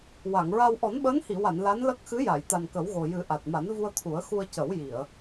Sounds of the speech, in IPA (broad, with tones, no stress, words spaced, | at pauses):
wa˨˩˨ŋɹa˧w ʔɔ˨˩˦nɓəː˧˥nhi˨˩˨wa˨˩˨n la˧˥nlə˦˥k̚ xɨ˧˥ja˨˩˨j t̪a˨˩nkə˨˩˦wɣo˨˩jɨ˨˩˦ ʔa˨˩t̚ma˨˩˦nvu˧ə̯ t̪ʰu˨˩˦ə̯xu˧ə̯ cə˨˩˦wji˨˩˨ə̯